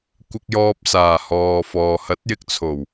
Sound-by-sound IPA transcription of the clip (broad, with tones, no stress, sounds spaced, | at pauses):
kʷ ɪ˧ k̚ j ɔː˧ p̚ s aː˨˩ h ɔː˨ f ɔː˨ h ɐ˨˥ t̚ j ɪ˧ k̚ t͡sʰ o˨˩ w